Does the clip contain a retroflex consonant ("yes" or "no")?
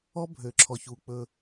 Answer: no